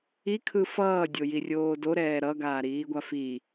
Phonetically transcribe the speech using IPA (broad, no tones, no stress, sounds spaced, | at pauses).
i kʰ ɯ f ʌː dʲ o j i rʲ oː d o ɾ ɛː ɾ ʌ ɡ aː ɾ iː ɡʷ a f i